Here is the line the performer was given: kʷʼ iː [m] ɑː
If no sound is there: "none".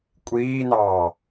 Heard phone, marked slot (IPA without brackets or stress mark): n̪